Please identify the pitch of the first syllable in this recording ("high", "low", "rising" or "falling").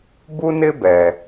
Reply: high